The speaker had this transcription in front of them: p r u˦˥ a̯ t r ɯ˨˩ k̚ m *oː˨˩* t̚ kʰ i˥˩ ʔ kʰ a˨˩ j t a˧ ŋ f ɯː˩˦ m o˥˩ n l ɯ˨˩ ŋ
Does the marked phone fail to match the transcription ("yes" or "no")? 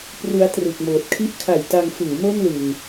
no